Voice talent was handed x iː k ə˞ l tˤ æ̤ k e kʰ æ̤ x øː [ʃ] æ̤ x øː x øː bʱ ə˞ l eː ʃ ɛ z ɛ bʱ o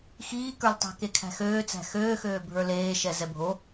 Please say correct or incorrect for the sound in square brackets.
incorrect